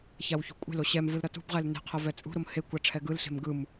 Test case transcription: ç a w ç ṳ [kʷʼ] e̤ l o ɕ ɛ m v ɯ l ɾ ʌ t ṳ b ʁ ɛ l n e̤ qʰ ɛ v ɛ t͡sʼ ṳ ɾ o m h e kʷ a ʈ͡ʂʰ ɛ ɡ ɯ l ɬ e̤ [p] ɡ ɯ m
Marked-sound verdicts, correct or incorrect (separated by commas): correct, incorrect